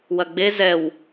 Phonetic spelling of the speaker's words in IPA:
wɐɡ͡be zɛw

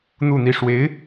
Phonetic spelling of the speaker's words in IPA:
n̪u˥˧n̪i˥˩ ʂwe˧˥ɪ̯

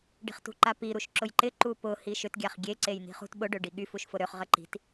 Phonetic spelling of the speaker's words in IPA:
ɖi̤χtṳǃapi ɾuʃǁʊjǃɪ ǃupʊ hiʃʏt ɡʲaχɡʲe ǀejn̪i̤χṳt ɓʊ ɖøɖiɠy fuʃfʊɾøχ ʁəǃi̤t

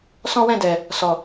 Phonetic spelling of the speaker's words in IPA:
sɔ̃˦wɛ̃˦˨dɛ˨ | sɔ˨

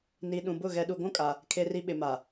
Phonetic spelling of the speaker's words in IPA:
ni˨ ɗũ˨bʊ˦˨ ɣɛ˨ɗu˨ɡʷũ˦kʼa˨ | kʰe˨ri˨ ɓɪ˨ma˨

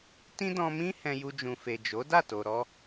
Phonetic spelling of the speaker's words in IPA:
tĩ˦dɔ̃˧mĩ˦ hɛ̃˧ju˧d͡ʒũ˨fe˨ d͡ʒo˨˦da˦˨to˨ɾɔ˧

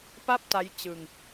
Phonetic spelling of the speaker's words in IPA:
pa˥˩p̚ta˦˥j t͡ɕɯ˧ŋ

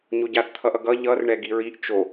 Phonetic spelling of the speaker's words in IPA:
ɲoɟaθ t̪ʰʌʔʌɡʌ ʎʌr ɳɛɡiɹiʔ t͡ʃo

